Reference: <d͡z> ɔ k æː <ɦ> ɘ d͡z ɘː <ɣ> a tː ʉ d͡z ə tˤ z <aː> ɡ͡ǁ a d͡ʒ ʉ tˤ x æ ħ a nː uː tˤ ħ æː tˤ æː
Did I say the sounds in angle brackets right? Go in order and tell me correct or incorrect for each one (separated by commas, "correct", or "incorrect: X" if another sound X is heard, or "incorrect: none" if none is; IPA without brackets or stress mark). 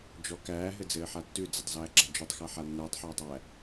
incorrect: d͡ʒ, correct, incorrect: ħ, incorrect: æː